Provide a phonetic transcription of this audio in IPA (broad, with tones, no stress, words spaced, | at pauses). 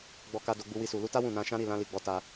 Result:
ɡ͡bɔ˧ka˧ do˧ɡ͡bu˧wi˧su˨ lu˧ta˦ wũ˦˨nã˧ ʃã˦ɾi˦˨lã˧ li˨ɡ͡bɔ˨˦ ta˧